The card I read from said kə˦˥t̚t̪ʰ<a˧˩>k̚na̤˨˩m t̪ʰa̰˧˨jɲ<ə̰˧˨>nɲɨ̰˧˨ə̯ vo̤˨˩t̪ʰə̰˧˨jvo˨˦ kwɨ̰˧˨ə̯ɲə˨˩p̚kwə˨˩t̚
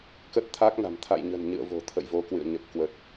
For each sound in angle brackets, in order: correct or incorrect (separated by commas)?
incorrect, incorrect